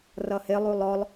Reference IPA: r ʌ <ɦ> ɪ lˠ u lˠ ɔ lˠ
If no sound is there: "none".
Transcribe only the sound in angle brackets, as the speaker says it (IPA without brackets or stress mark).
h